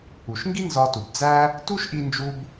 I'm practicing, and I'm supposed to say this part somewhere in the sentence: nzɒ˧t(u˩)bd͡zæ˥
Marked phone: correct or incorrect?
correct